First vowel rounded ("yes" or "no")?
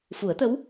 yes